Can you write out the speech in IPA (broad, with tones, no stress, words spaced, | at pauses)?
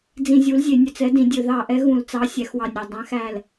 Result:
d͡zĩ˧˩˧zʲu˨˥lzʲe˧˩˧ nʲœ˧˩t͡sɛ˨˥dĩ˧˩˧dʲɵ˧˩˧ ðɑ˧˩˧ʔɛ˨˥ ɣũ˧˩˧lt͡sɑ˨˥ sʲæ˨˥xwɑ˧˩nʲɾæ˧˩ dˤæ̃˨˥xæ˧˩l